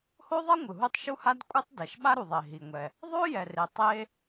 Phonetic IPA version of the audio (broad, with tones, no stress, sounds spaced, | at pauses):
h o˥ ðˤ ʌ˥ ŋʷ ɯ˩ ɦ u˥ tˤ ʃ u˥ h a˥ d kʷʼ ɯ˥ tˤ d ɛ˩ ʃ ɓ a˥ ɾ u˩ ðˤ e˩ ɦ i˩ ŋʷ ɛ˩ | ðˤ o˥ j ɛ˩ r e˩ tˤ e˥